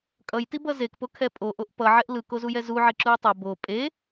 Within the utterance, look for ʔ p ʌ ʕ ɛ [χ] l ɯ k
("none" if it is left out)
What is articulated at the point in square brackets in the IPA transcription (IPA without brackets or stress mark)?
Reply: ʔ